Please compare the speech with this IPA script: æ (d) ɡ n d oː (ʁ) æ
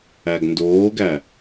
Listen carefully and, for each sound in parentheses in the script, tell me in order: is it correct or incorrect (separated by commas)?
incorrect, incorrect